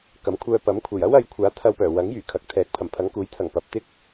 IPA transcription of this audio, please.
kɐ˨˥mkʷʰœː˧ pɐ˨˥m kʷʰe˨˩jɐ˥wɐ˨˧jkʷʰaː˨˥ t̪ʰɐ˧wpœː˨˩ wɐ˨˥ŋjyː˨˩ kʰɐ˨k̚t̪ʰɛː˨˥k̚pʰɐ˨˩m pʰɐ˨˧ŋkuː˨˥j t̪ʰɐ˨˩ŋ pɐ˨˥p̚ t̪ɪ˥k̚

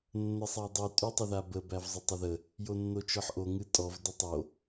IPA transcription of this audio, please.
nːəsˤædˤy tʼytˤəðabə bævzˤətˤəðə | jonːot͡ʃɔħʔo ŋɨtʼɔv dətˤo

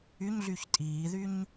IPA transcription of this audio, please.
yɲɮyç tʼiːðyɲ

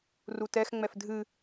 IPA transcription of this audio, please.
rutɛxŋ͡mɛf dʱɨ

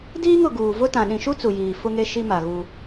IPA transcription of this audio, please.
diː˦ŋʊ˨ ɡuː˨ vʊ˦tã˨ ɗĩ˨ʃu˦ t͡su˨jiː˨ fʊ˦ŋe˦ʃi˦ ma˨ɣu˦

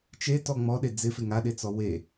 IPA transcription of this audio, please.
t͡ʃetɔ ŋ͡mɔɗe d͡zɪfɪ ŋaɗet͡sɔ we

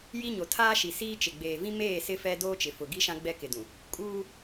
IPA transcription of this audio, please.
ji˦ɲo˨ tʰaː˦ʃi˨ siː˦t͡ʃɪ˨ ɡ͡beː˨vĩ˦ meː˦˨ sɪ˦fɛ˦ doː˦t͡ʃɪ˨fʊ˨ ɡi˦ʃã˦ ɡ͡bɛ˦kɪ˨dũ˨ | kʼuː˦

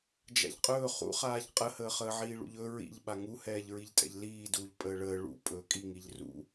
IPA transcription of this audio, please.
d͡ʒa̰ʎqʼɵː χṵχaːʎ qʼəhəːχəː ʕiːɭṵʎɵ ɹḭʎ ɓaŋu hɛːʎɹiʎtʼɛ̰ʎliː duːʎpʼəːɭəː ɭṵ pʼɵːkʼiŋiʎ rṵ

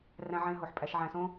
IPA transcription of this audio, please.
ræ̃˨ʕẽ˨ɦo˩ħ pʼæ˨ʃʕæ̃˨sõ˦

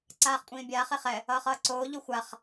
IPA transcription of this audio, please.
ǀaːχkʷʼĩːbʲaːχ eχɛ | ʌːχʌːǀoː ʎuxʷaχ

